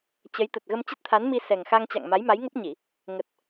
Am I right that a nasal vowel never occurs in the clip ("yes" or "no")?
yes